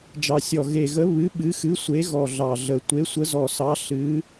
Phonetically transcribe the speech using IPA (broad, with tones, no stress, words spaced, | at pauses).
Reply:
d͡ʒɑ˨˩sʲɔ˨˩ ɣe˨˩ɣə˨˦ βɨ˨˦ ɓɨ˨˦xɨ˨˦ sʷe˨˦ ɣɔ˨˩ ɮɑ˨˩ɮə˨˩ tʷe˨˦sʷə˨˦zɔ˨˩sɑ˨˦ ɬɨ˨˦